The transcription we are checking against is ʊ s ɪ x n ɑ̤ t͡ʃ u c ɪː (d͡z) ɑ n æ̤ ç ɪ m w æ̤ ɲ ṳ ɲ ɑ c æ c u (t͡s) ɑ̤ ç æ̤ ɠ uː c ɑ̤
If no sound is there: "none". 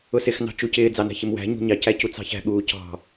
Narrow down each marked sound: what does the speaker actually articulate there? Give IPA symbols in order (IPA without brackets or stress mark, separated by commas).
d͡z, t͡s